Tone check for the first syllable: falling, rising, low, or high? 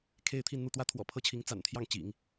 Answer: falling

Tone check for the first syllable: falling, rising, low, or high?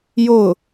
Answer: falling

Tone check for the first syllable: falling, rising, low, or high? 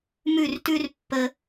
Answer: falling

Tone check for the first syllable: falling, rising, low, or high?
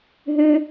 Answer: high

